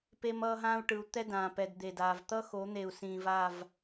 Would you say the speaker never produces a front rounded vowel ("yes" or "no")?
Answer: yes